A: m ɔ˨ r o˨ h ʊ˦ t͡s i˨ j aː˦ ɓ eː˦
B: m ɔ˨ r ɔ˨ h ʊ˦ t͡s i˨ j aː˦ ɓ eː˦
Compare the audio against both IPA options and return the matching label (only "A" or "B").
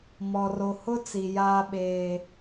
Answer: A